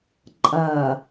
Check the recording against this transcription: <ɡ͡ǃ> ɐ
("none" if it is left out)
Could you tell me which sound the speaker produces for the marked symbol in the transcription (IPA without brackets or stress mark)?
ǃʼ